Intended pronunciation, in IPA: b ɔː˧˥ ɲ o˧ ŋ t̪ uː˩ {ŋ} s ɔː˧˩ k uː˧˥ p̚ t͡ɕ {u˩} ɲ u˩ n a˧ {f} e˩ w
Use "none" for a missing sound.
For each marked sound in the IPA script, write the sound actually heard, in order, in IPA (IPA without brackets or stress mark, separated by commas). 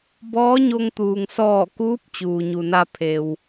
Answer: ŋ, uː˩, pʰ